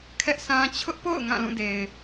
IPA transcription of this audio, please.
kʰɛ˦ʔsʰã˦ t͡ɕʰʊ˦ʔpo̰˦˨ʊ̯ ŋã˦˨lũ˦˨de˨ɪ̯

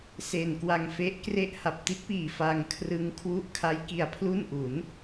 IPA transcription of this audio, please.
se˨˩nkwa˧ŋ fe˦˥ʔ kre˥˩ʔ ha˨˩p̚ti˦˥t̚piː˨˩ fa˧ŋkʰrɯ˦˥ŋ kʰwu˦˥ʔkʰa˦˥j ki˧a̯pʰlu˥˩nʔu˩˦n

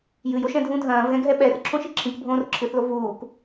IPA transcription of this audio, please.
jɨjoʃ ɛ̃dʱũ dʱɐ̃ːvɣɛ̃ɡʱɛ ɓɛr ǁʰõʃiǁʰĩk bʱõːrǁʰɨθlo vuːk

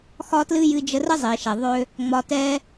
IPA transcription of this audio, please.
xɒ˥tlɨ˥ jɨ˧d͡ʒə˧rə˥ zˤi˩ʃɛ˩ ðˤø˧ | ŋ͡mɒ˧tɛ˥

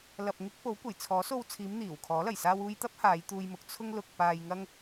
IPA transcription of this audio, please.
lɐ˨p̚ŋɪ˧k̚ po˨˥wkʷɐ˨˩jt͡sʰɔː˨˥ so˧wt͡sʰiː˨˧m n̪iː˨˩wkʰɔː˨˥lɐ˨˩j saː˧wuː˧jt̪ɐ˥p̚ haː˨˧jt̪uː˧jmʊ˨k̚ t͡sʰʊ˧ŋlʊ˨k̚ paː˧jŋɐ˥ŋ

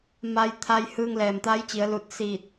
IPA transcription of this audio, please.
ma˧jt̪ʰa˧j hɯː˧ŋlɛː˩mt̪aː˧˥jt͡ɕi˩˧ə̯ lu˧˩t̚siː˧˩t̚

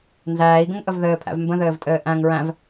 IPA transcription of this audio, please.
nzæːi̯ɡə̃ŋʔəv ðɘːpʰæ̰v mbə̃ðɘːvtʼɘː ʔæ̃ŋ ɹæ̃v

